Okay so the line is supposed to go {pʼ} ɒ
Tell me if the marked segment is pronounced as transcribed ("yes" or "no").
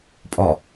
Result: yes